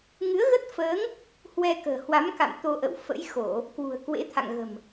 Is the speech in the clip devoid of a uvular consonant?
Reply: yes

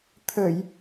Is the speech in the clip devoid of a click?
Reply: yes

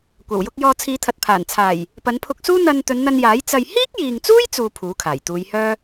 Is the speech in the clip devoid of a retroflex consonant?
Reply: yes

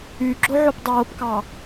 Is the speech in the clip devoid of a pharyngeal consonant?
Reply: no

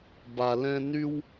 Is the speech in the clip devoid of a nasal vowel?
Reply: no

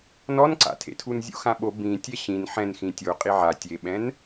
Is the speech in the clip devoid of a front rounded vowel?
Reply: yes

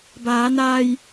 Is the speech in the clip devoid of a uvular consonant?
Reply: yes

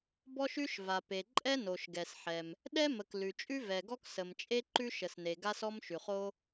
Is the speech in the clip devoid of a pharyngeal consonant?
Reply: no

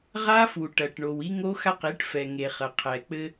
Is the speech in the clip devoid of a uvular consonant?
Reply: no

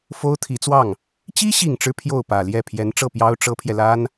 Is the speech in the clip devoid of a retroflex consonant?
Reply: no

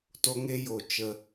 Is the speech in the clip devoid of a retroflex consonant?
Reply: yes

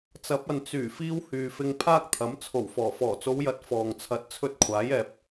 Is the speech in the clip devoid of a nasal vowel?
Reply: yes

